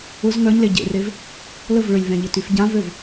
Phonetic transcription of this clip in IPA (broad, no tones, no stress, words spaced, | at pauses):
ʊz ŋœɲle ɟḛrev | ləv ɭʏlʲvɛ̃ ʎɪtyfɟãvøv